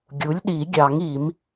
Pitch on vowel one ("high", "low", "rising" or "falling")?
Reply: rising